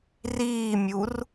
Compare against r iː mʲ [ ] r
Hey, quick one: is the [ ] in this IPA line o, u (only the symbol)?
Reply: u